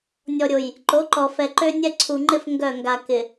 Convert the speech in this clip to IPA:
nʲ ɔ˨ ɾʲ o˨ j | ǃ o˨˦ ǃ ɔ˨ f ɛ˨ ǃ ø˦ nʲ ɛ˦ ǀʰ u˨ ŋ͡ǃ ɪ˦ f ŋ ɡ œ˦˨ ŋ ɡ a˨ k ɪ˨

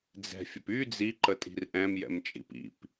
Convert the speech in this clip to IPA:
d͡z ɛ̤ fʲ ə p y d͡z i ǃ ə tʼ i̤ r ʔ ɛ̃ m j ɛ̰ m t͡ʃʼ ḭ p ḭ p

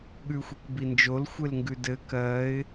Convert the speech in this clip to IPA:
ɠ ʉ xʷ i k b i n d͡ʒ o l xʷ e l ŋ ɡ ʉ d ɘ k ɜ ɪ̯

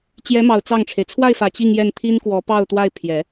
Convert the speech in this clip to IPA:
t͡ɕ j ɛ˧˥ m ɑ˨˩ ʊ̯ t͡s ɑ˥˩ ŋ ʈ͡ʂʰ e˩ ɪ̯ t͡sʰ w a˥˩ ɪ̯ f ä˨˩ t͡ɕ i˥˧ ŋ j ɛ˥˩ n t̪ʰ i˥ n k w ɔ˧˥ p ɑ˥˧ ʊ̯ t̪ w a˥˩ ɪ̯ pʰ j ɛ˨˩˦

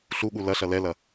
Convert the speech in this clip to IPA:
ɬ u ɠ u l ɐ ɬ ɐ l ɛ l ɐ

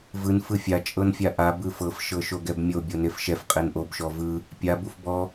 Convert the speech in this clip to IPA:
v ɯ n f ɯ fʲ a t͡ʃʼ ɤ n fʲ a ʔ a b ɯ f ɤ f ʃ ɤ ʃ o ɡ ɛ b mʲ o bʲ o n e f ʃ ɛ f qʼ e n ʔ o b ʃ ɔ v ɯ | pʲ a b u f b ɔ

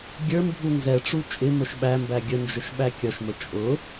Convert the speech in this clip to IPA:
ɡʲ ə˞ m bʱ u n z ɛ ʈ͡ʂ u t͡ʃʼ ɪ m ə ʃ ɓ æ m b æ ɡʲ ə n d͡ʒ ə ʃ ɓ æ kʲ ʌ ʃ m ə t͡ʃʼ ʊ

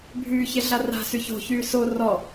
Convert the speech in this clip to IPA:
bʱ yː ç e ɮ a r a̤ s y ç o̤ ç yː s o r ɔ

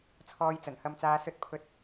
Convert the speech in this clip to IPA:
t͡sʰ ɔː˧ j t͡s ɐ˨˩ n h ɐ˧ m t͡s aː˧ s ɵ˨˥ t̚ pʰ ɵ˨ t̚

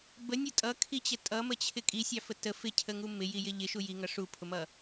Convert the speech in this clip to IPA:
b ə nʲ ʊ tʼ ʌ kʰ i t͡ɕ ə tʼ ʌ m ə t͡ɕʰ ɪ kʼ i sʲ ɑ f ə t ə f ɪ cʰ ə ŋ u m ɪ j i j ɪ ʎ ɪ ʃ u j i ŋ ʌ ʂ u pʰ ʊ m ʌ

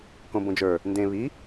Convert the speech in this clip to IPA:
k õ b õ d͡ʒ ə˞ | n d ẽ β i

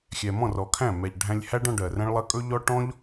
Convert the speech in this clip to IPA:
xʲ ɛ˧ m ɔ̃˦˨ r ɔ˨ kʰ æ̃˦˨ m ɛ˨ ʎ ɖʱ æ̃˧ lʲ h æ˦ ɖ ɔ̃˧ ɖ ɜ˨ r ɛ̃˦ ɭ lˠ ɜ˦ kʼ ɵ˦ ʎ ɔ˦ ʈ ɔ̃˦ ʎ

